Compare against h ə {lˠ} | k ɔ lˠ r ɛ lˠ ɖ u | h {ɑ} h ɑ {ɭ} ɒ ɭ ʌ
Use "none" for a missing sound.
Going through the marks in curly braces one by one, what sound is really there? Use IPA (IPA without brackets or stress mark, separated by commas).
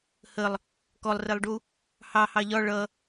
lˠ, ɑ, ʎ